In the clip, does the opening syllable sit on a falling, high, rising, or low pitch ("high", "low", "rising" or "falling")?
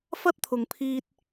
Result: high